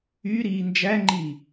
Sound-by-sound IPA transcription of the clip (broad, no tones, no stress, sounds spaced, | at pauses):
y ɾ iː n d͡ʒ æ ŋ͡ǃ i